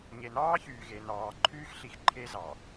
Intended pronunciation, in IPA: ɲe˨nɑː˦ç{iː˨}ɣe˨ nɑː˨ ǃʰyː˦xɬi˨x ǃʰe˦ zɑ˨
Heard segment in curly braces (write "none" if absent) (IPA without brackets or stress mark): yː˨